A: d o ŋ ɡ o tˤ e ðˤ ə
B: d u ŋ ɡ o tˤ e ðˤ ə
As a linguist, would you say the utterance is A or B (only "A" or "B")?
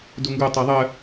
B